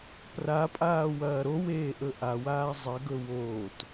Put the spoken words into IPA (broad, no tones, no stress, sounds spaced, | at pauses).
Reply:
p r a pʼ aː w ɐː ɾ o w eː ʔ ɵ ʔ a w aː zˤ ɐ ɡ ɵ w oː t